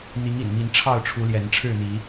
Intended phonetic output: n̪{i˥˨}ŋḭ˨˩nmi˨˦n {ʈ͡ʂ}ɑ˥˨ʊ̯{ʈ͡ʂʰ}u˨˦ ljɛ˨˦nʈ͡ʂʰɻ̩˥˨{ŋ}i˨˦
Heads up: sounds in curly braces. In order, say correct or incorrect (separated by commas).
incorrect, incorrect, correct, incorrect